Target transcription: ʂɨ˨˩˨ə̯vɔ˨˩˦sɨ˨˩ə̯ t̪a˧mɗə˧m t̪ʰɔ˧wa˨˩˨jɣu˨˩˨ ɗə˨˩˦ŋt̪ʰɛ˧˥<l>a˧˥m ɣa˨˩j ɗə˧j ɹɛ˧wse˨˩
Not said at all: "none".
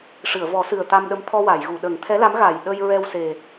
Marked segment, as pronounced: l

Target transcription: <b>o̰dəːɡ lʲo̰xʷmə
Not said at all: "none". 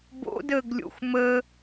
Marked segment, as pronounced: b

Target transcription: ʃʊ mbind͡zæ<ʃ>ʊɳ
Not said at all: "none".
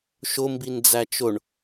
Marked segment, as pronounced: t͡ʃ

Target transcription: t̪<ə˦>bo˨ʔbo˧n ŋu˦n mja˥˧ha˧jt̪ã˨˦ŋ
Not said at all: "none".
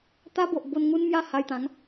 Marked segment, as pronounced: a˦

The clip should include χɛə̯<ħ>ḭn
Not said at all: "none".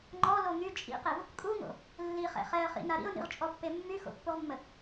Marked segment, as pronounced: χ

